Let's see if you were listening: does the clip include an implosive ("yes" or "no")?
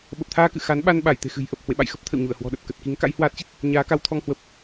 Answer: yes